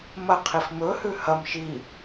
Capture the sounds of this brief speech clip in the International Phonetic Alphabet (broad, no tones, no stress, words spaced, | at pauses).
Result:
mɐqʰif mɵhʉ hɐm ʃi